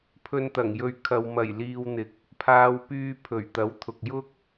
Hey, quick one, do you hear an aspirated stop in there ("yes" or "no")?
yes